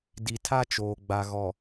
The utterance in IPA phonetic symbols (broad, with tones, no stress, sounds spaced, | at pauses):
d i˨ tʰ a˦ t͡ʃ oː˨ ɡ͡b a˨ ɣ ɔ˨